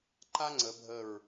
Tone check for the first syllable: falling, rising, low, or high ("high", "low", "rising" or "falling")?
high